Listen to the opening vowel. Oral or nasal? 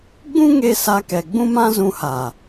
nasal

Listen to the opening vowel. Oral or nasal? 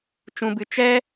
nasal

